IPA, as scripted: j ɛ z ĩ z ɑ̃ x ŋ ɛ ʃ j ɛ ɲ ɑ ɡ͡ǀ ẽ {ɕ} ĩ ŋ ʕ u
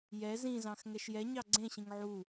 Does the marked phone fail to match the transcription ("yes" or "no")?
no